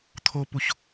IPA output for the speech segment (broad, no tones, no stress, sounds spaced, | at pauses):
t̪ʰ o p u ç